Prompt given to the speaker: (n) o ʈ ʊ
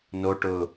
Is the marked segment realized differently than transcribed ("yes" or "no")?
no